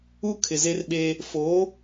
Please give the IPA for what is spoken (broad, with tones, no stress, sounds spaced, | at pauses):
u˦ kʰ ɪ˨ z e˦ r ɓ eː˦ | f oː˨˦